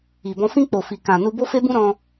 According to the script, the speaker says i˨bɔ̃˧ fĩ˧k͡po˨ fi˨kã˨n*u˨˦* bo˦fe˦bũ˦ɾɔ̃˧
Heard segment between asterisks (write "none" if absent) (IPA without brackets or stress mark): u˧